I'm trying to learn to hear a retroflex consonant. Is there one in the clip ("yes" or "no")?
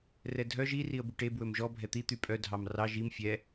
yes